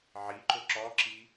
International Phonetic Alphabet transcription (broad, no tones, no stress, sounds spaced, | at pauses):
ʕ i ǃ ʊ ǁ ɔ ǁ i